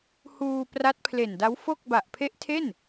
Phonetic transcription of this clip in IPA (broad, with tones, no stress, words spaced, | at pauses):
huː˧pra˦˥t̚pʰle˨˩nda˦˥w fo˥˩k̚ ba˨˩ʔpʰe˦˥ʔ tʰe˥˩n